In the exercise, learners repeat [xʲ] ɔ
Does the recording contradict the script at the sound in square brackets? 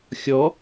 no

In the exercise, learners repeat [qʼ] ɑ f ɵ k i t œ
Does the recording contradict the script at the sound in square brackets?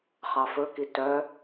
yes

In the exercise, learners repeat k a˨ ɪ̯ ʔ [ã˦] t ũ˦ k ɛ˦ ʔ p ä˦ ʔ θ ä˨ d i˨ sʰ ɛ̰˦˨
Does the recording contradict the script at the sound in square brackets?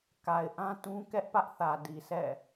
no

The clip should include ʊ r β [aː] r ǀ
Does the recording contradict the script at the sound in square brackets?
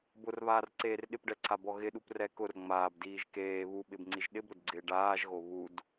no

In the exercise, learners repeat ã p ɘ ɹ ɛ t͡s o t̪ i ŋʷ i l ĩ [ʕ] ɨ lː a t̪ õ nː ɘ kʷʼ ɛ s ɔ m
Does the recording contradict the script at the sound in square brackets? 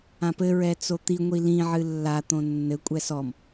no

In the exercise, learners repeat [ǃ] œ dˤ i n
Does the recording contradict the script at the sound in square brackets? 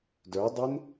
yes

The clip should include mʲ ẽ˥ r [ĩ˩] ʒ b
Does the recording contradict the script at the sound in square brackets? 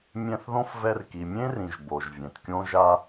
no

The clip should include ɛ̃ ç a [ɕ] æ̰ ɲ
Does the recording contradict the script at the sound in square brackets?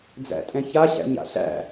no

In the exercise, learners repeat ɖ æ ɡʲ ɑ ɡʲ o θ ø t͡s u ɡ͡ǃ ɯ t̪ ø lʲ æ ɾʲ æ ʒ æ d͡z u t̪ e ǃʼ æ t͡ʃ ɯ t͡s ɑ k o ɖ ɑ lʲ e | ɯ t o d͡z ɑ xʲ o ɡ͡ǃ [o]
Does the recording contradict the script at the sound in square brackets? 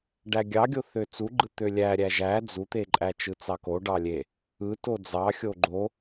no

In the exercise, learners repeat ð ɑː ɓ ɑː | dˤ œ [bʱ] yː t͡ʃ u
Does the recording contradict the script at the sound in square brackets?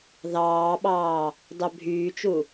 no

